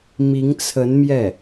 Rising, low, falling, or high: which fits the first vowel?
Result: rising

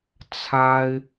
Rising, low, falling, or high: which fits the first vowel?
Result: high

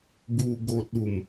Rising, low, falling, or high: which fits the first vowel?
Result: low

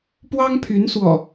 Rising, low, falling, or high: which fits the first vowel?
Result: high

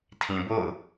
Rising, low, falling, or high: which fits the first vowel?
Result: low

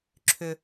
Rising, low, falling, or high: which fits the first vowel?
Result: low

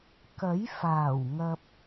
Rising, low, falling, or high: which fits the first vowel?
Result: rising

